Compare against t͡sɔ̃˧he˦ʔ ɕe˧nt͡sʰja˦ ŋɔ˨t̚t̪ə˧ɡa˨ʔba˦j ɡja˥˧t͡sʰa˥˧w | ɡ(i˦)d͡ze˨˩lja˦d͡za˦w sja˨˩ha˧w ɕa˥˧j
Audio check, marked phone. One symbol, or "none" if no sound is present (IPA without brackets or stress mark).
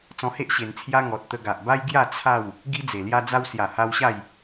i˦